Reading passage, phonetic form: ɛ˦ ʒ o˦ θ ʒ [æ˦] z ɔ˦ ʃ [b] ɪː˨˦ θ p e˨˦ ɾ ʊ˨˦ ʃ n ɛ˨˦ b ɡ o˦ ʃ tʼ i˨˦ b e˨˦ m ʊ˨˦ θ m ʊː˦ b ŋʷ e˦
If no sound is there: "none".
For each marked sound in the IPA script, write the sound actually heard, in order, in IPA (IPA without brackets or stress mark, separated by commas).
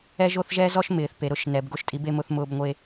ɛ˦, m